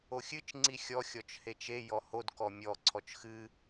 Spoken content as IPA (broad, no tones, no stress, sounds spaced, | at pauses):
o xʲ ɨ t͡ʃ ŋ͡ǀ i xʲ ɔ xʲ ɔ t͡ʃ h e t͡ʃ e j ɔ h o d k ɔ mʲ ɔ ǀʰ ɔ t͡ʃ x ɨ